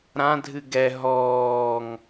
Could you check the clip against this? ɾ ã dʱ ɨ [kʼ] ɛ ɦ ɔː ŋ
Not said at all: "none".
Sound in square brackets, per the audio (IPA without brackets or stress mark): ɡ